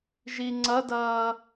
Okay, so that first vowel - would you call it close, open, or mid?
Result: close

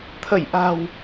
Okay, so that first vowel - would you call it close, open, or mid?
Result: mid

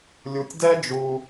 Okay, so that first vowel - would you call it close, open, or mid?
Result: close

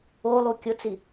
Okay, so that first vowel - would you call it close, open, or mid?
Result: mid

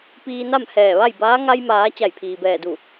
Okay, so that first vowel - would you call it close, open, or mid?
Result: close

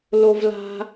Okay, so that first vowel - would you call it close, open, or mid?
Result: mid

